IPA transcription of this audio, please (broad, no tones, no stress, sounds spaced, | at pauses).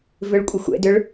v ʏ ɭ kʷʼ ɪ xʷ ɛ̰ d ʏ ɭ